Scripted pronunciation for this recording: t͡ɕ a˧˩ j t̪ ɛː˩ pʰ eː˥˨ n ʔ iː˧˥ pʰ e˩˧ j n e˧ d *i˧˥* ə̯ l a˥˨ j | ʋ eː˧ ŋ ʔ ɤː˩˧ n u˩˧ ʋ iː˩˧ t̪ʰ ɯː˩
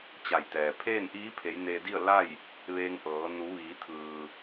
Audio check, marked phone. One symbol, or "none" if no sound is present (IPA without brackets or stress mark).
i˥˨